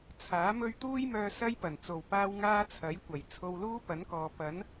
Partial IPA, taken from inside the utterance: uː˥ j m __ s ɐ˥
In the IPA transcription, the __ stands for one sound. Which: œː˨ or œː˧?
œː˧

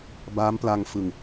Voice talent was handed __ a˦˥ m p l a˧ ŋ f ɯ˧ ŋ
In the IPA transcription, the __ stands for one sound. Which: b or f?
b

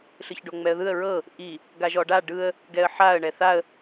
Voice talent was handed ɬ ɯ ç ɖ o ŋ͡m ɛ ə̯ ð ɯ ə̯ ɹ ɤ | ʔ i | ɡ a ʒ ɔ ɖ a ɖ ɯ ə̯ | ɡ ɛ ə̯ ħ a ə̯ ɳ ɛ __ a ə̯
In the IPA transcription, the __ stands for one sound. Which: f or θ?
θ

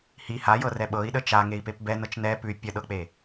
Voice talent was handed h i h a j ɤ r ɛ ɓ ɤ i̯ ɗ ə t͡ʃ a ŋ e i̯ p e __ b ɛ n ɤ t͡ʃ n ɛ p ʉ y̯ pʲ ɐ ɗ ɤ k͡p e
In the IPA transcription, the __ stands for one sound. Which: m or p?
p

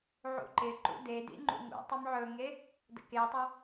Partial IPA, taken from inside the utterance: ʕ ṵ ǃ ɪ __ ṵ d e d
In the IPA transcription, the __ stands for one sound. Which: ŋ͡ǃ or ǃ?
ǃ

